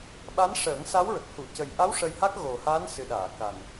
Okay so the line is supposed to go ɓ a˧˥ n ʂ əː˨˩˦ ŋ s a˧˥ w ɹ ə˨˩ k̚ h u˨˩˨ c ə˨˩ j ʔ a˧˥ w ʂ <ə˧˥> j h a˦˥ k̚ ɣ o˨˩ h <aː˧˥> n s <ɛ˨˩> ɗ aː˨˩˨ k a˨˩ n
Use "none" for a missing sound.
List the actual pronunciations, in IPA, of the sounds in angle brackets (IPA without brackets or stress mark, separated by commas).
ə˧, aː˧˥, ɨ˨˩